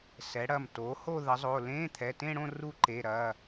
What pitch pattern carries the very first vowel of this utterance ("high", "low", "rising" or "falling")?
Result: rising